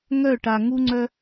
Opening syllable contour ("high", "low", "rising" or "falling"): falling